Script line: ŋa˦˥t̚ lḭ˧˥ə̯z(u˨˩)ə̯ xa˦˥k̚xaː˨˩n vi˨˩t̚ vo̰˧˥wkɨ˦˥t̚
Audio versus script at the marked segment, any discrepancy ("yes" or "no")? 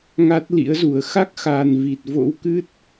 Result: no